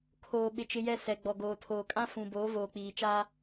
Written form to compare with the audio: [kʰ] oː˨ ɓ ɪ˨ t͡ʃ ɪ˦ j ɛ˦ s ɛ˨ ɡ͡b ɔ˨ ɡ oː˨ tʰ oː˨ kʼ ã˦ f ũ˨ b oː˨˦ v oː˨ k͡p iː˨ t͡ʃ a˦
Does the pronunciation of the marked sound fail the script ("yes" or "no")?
no